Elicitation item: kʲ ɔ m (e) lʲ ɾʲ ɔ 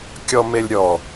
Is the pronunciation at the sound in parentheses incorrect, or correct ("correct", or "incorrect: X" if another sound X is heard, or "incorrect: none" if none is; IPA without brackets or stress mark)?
correct